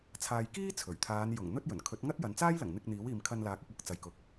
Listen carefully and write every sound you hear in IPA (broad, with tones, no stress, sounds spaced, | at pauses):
t͡sʰ aː˨ j k iː˥ t͡sʰ ɵ˨˩ ɥ t̪ʰ aː˨˧ n j ʊ˨˩ ŋ n̪ ɵ˥ t̚ j ɵ˨˩ n kʰ ɵ˨˥ t̚ ŋ ɐ˥ t̚ j ɐ˨˧ n t͡s aː˥ j l ɐ˨˩ ŋ n̪ ɪ˧ k̚ n̪ iː˨˥ w iː˨ m kʰ ɐ˧ n l aː˨ k̚ ʊ˧ k̚ w ʊ˥ k̚ t͡s ɐ˨˧ j k ʊ˨˥ k̚